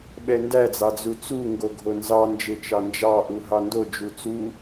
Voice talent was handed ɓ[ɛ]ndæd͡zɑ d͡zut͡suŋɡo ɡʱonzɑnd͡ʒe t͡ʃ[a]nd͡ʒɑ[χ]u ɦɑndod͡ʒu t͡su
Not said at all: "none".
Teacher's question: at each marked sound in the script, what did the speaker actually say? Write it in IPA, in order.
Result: ɛ, ɑ, ʔ

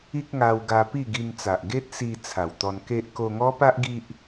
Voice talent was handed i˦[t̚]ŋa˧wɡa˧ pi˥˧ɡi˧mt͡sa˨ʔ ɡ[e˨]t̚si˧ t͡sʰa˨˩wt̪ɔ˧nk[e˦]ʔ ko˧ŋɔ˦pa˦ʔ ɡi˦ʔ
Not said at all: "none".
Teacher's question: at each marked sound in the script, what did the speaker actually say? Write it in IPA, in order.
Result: k̚, e˦, e˦

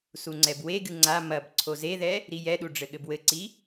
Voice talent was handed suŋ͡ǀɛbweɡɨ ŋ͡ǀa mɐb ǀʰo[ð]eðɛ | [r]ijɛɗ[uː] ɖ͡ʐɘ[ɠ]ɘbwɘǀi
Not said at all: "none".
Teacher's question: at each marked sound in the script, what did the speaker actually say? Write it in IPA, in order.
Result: z, ɾ, u, ɠ

